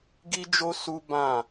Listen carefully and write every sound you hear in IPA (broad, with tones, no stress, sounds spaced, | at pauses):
ɡ i˦ d͡ʒ o˦ s u˦ b ã˦˨